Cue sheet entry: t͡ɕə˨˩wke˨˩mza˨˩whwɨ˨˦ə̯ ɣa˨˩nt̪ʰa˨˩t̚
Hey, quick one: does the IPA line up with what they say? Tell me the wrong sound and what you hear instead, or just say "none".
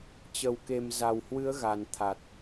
none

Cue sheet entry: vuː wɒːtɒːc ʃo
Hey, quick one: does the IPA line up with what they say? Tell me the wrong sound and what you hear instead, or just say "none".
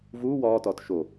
c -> t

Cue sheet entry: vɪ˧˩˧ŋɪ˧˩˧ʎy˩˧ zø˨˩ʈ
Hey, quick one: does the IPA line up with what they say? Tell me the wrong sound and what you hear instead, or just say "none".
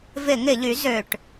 none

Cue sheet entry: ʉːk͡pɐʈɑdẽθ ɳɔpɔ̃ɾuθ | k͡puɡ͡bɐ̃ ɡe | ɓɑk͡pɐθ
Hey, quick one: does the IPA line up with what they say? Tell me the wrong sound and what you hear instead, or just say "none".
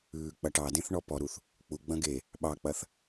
ɔ̃ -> ɔ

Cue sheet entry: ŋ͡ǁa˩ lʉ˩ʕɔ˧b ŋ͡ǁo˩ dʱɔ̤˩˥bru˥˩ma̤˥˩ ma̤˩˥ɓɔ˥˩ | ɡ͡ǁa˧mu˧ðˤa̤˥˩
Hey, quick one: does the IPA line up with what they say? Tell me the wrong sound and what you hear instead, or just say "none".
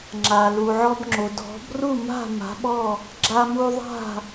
ʉ˩ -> u˩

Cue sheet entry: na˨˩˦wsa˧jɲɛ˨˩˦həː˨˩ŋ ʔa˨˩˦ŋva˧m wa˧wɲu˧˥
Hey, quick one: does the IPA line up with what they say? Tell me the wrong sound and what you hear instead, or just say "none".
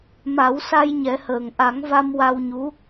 n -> m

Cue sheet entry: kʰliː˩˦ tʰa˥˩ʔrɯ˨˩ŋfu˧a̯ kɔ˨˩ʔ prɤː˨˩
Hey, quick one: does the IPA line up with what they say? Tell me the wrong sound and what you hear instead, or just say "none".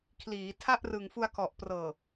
none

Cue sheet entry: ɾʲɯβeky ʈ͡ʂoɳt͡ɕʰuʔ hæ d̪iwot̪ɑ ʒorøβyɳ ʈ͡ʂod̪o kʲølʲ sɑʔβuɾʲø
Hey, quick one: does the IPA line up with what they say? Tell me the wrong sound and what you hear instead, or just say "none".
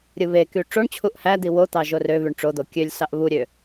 none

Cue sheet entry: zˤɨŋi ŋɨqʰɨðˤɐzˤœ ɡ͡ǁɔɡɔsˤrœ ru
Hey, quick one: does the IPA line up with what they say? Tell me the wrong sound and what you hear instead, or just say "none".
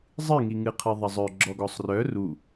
none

